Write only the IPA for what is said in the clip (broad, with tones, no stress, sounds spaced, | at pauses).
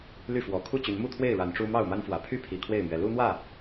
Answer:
l y˥˨ f w ɔ˨˩ kʰ u˥˨ t͡ɕ y˨˦ n m u˥˨ t̪ʰ w e˥˨ ɪ̯ ɻ a˨˦ n ʈ͡ʂ u˦ m ɑ˥˨ ʊ̯ m a˦ n f w ä˨˩ pʰ y˥˨ pʰ i˨˩ kʰ w e˥˨ ɪ̯ m ɥ ɛ˨˦ l u˦ n̪ w ä˥˨